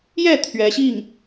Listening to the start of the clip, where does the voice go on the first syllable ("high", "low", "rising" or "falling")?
falling